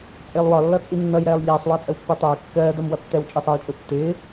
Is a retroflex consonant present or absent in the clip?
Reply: absent